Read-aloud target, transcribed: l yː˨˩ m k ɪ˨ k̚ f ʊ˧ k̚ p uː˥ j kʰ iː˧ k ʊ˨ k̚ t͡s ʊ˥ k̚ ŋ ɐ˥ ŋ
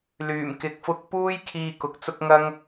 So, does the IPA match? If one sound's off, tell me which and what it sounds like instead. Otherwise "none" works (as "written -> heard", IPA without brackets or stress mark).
none